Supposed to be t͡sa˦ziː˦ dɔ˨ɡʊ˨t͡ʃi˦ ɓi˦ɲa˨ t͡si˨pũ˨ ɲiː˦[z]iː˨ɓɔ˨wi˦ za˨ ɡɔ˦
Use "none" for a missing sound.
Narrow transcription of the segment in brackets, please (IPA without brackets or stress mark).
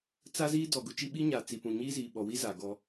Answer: z